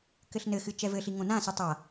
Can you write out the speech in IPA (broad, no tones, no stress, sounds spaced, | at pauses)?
k ɘ ɬ n ɘ x ɨ t͡ʃ ɛ v ɘ ɬ i ŋ õ n ã s ɨ tˤ a